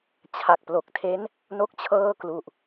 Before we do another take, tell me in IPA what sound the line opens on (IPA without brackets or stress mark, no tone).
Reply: t͡ɕʰ